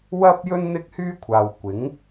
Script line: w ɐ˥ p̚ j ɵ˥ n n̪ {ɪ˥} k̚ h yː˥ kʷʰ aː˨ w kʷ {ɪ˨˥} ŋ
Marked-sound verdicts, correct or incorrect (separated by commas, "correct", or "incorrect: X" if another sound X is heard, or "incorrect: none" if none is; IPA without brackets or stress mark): correct, correct